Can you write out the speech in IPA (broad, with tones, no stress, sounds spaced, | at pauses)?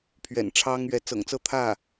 pʰ ɥ ɛ̰˨˩ n ʈ͡ʂʰ ɑ˥ ŋ ɥ ɛ˧˥ t͡s ɤ̰˨˩ ŋ t͡s ɤ˥˧ t̪ʰ ä˥˩